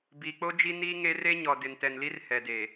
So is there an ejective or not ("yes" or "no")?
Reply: no